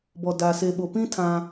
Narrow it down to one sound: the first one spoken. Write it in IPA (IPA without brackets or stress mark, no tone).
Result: b